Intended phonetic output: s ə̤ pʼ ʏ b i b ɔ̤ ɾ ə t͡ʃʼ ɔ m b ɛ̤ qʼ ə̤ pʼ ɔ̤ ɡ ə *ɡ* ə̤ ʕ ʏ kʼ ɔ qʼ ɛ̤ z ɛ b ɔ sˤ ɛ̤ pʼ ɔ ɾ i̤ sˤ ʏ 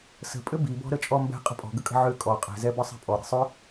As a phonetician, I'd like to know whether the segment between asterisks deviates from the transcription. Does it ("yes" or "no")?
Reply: yes